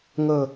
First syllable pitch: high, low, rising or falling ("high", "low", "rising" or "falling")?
falling